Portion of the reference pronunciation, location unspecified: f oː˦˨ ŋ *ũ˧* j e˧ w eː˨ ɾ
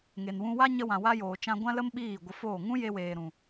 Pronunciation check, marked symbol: incorrect: ũ˦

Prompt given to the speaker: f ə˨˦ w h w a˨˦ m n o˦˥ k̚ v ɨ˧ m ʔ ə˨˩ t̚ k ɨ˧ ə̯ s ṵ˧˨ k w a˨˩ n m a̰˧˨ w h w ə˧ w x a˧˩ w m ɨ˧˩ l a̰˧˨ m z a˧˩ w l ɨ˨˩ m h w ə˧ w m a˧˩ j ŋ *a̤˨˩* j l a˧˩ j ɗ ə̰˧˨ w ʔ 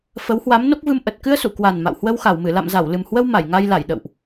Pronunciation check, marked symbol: incorrect: a˧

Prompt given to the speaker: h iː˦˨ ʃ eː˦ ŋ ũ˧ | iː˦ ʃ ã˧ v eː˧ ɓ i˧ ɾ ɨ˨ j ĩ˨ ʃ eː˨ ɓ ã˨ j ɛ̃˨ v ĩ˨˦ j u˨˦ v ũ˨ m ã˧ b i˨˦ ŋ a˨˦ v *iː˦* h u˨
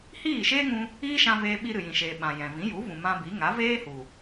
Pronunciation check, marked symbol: incorrect: eː˦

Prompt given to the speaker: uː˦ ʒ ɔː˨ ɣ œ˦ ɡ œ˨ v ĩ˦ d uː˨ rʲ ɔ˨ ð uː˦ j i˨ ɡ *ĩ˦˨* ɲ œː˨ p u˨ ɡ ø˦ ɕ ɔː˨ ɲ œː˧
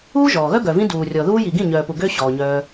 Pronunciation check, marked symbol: correct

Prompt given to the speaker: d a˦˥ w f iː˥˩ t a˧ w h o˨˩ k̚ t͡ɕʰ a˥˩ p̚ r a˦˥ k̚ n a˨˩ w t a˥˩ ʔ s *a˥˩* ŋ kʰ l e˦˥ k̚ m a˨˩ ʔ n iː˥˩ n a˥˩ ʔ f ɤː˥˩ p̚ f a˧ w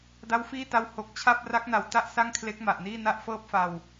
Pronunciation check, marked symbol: correct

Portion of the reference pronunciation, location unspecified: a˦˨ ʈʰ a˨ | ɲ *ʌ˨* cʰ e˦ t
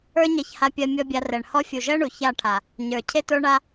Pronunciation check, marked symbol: incorrect: ə˞˨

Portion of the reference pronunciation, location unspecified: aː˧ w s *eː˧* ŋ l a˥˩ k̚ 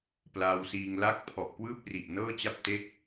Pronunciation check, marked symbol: incorrect: iː˧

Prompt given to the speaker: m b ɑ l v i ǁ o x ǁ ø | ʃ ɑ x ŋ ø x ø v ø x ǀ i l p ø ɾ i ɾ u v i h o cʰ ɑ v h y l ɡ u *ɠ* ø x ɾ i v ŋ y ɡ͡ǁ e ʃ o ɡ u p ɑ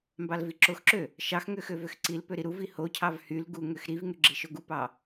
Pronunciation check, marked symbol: incorrect: ŋ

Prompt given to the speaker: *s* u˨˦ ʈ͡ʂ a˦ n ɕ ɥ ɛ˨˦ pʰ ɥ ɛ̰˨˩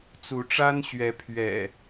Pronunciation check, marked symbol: incorrect: t͡s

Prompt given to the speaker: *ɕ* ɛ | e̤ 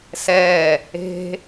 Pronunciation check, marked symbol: incorrect: s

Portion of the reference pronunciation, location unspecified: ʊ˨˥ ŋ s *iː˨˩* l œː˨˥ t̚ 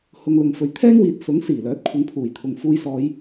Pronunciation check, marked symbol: correct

